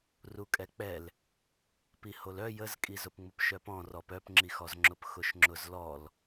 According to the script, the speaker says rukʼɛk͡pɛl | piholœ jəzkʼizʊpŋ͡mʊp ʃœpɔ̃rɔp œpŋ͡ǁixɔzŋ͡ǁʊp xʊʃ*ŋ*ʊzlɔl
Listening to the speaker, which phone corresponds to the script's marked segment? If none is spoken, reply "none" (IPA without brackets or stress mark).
ŋ͡ǁ